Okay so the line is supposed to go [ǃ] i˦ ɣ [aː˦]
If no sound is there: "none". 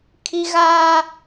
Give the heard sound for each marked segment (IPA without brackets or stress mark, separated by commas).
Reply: kʰ, aː˦